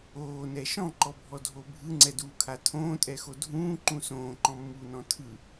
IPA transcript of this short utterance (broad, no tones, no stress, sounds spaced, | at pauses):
oː n ɛ ʃ ɔ̃ ǃ ɔ bʱ ɔ dʱ o bʱ ɯ ŋ͡ǀ ɛ d uː kʰ a tʰ õː tʼ ɛ x o dʱ ũː ǃ ũ s õː ǃ ɔ̃ mː uː n ɔ̃ tʰ ɯ